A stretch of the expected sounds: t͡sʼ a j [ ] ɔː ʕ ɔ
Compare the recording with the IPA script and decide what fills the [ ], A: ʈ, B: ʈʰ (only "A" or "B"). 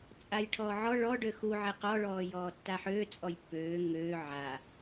B